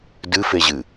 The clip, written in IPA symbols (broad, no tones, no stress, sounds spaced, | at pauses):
d ɨ f e ʑ ɨ